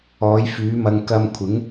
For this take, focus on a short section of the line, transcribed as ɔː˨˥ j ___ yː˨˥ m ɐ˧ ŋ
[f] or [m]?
f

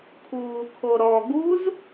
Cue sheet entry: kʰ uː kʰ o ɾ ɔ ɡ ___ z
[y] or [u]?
u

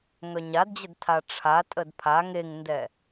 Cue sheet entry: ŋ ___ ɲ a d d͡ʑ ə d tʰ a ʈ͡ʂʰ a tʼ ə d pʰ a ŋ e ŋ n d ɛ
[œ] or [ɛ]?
œ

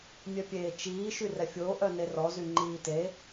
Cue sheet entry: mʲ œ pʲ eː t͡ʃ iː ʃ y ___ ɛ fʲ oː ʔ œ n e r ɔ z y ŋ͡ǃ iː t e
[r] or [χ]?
r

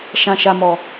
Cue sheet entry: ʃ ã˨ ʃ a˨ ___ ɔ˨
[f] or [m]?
m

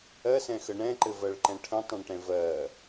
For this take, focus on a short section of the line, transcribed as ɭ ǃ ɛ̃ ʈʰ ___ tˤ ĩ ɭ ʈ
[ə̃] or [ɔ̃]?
ə̃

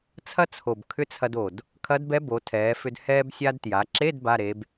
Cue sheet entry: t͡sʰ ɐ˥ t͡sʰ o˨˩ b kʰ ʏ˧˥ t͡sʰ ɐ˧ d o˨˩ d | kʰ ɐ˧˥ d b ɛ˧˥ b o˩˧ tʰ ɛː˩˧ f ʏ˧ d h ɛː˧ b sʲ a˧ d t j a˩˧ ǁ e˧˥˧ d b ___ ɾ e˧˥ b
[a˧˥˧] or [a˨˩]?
a˧˥˧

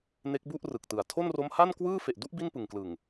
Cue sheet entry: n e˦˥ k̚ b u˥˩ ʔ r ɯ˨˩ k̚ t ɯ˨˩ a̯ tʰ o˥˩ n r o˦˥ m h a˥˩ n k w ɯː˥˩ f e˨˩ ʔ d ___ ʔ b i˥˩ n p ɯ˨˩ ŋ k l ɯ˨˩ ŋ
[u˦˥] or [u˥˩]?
u˥˩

